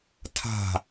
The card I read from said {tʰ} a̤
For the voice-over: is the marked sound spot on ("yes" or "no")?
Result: yes